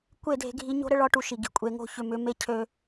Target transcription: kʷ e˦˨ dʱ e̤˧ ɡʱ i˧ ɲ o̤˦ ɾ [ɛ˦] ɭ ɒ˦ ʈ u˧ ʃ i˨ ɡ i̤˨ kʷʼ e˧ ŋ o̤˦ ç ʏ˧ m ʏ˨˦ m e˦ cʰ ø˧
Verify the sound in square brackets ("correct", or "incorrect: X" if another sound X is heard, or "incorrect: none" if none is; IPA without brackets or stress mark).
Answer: incorrect: ə˦